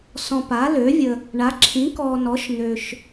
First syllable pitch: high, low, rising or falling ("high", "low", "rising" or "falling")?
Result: low